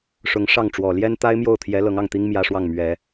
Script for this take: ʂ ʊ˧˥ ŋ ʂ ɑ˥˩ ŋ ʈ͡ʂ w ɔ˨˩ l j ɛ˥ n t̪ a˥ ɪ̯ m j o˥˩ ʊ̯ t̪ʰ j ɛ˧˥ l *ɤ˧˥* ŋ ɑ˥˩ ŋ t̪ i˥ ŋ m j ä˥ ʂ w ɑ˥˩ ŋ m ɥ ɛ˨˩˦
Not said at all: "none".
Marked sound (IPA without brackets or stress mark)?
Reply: ɤ˧˥